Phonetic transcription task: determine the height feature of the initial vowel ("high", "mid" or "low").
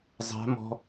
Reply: low